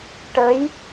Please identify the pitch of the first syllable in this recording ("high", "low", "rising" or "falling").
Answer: rising